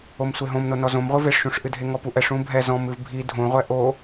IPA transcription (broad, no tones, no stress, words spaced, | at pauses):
omsʷeɦõmno nɔzõmʁʷɨ veʂʃũʂʔɨdʱe ŋɔpuʔɛʂ ũbʱɛ zɔ̃m ɨvbʱi dʱõʁʷɛ ʔo